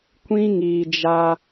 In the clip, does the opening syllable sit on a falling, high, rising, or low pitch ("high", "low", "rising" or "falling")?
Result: high